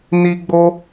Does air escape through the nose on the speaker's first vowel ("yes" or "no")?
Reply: no